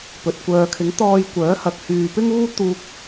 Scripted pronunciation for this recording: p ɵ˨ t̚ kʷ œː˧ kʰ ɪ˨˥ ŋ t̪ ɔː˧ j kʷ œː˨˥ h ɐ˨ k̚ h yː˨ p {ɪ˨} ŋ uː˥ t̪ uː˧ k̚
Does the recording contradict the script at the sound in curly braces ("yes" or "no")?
yes